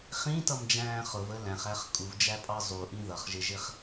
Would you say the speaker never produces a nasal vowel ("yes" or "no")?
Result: no